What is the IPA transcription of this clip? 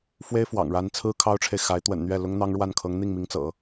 f w e˥ ɪ̯ f w ɑ̰˨˩ ŋ ɻ a˧˥ n t͡sʰ ɹ̩˥ kʰ ɑ˥ ʊ̯ ʈ͡ʂʰ e˨ ɪ̯ x a˧˥ ɪ̯ t̪ w ə̰˨˩ n n̪ ɥ ɛ˥˩ l ʊ˥ ŋ n̪ ɑ˥ ŋ ɻ w a˥˩ n kʰ ɤ˧˥ ŋ n̪ i˥˩ ŋ m i˧˥ ŋ t͡s ɤ̰˨˩˦

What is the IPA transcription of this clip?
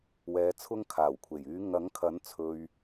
w ɛː˨˧ t͡sʰ ʊ˧ ŋ kʰ aː˨˩ w kʷʰ e˨˩ j yː˨˧ ŋ ɐ˨˥ ŋ kʰ ɐ˨˥ n t͡sʰ ɵ˨ ɥ

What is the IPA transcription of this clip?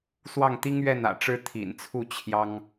s w ɑ˥˩ ŋ t̪ i˥ ŋ ɥ ɛ˥˩ n ä̰˨˩ ʈ͡ʂ ɻ̩˥ t̪ʰ ḭ˨˩ n t͡sʰ u˥˩ t͡ɕʰ j ɑ˥ ŋ

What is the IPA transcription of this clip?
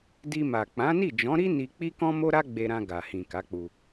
d i˧ m a˨ k͡p ã˨˦ n i˦˨ d͡ʒ ɔ̃˨˦ ɾ i˦ n i˧ k͡p i˦ k ɔ̃˦ m o˦ ɾ a˦ ɡ͡b e˧ ɾ ã˧ ɡ a˨ h ĩ˨ k a˨˦ k͡p u˧

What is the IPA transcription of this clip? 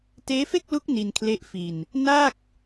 t eː˦˥ f e˥˩ k̚ l u˦˥ k̚ n i˧ n kʰ l e˦˥ ʔ f i˧ n | n a˥˩ k̚

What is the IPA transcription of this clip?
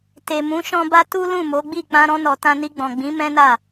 t e˨ m ũ˨˦ ʃ ɔ̃˦ b a˦ t u˦ l ũ˦˨ m o˨˦ ɡ͡b i˦˨ k͡p ã˧ ɾ ɔ̃˧ n ɔ˨ t ã˧ n i˧ ɡ͡b ɔ̃˨ ɡ͡b ĩ˨˦ m ɛ̃˦ n a˦˨

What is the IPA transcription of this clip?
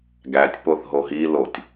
ɡ æ tʲ p o θ ɦ o ɦ i l o tʲ

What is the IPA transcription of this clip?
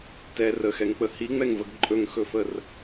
t ɛ r ə x ɛ ŋ k͡p ə h i ŋ͡m ɛ ŋ v ə ɡ ǃʼ ɵ ŋ x ɵ f ə r

